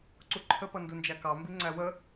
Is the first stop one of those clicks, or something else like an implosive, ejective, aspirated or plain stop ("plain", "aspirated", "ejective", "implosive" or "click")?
click